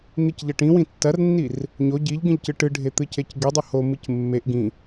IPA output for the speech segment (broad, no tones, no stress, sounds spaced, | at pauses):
n̪ i c ʎ ɐ ʈ ĩ w ĩ tː ɐ r nː i r | ɲ o ɟ i ʎ ɡ ĩ ʎ c ɨ ʈ ɨ ɖʱ e t̪ ɨ c e c ɡ i dˤ u h o m ɨ c mː e ʔ ɡ ĩ